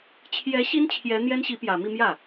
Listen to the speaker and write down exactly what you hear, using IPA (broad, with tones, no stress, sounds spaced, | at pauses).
t͡ɕʰ j ɛ˧˥ ɕ i˥ n t͡ɕʰ j ɛ˧˥ n̪ j ɛ˥ n ɕ i˧˥ p j ä˨˩ m i˥˧ m j ä˥˩